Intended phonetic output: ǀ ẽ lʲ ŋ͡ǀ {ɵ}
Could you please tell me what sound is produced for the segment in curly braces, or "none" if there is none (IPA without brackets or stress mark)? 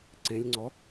ɔ